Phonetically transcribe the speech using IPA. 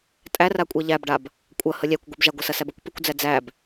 tʼ æ r a kʷʼ ɛ ʎ æ b ɖ a b | kʷʼ ɐ h ə lʲ æ kʷ ɡʷ ə b ʒ a ɡʷ ɐ s ɐ s æ b ɐ kʷ p ə kʷ d͡z æ d͡z æ b

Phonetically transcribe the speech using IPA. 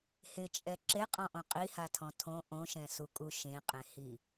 h ɪ t͡ʃʼ ɛ ǁ e qʼ ɔ̃ ʔ õ qʼ i h a tʰ ɔ̃ tʰ õ ʔ õ ʃ ɛ̃ s u kʼ u ʃ ẽ qʼ ẽ h i

